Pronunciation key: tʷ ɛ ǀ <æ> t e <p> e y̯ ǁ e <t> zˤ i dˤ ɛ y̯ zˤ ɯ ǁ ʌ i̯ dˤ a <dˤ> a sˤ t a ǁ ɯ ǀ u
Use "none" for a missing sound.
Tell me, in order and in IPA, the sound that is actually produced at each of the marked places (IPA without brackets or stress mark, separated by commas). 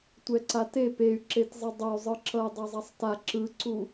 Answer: a, p, t, zˤ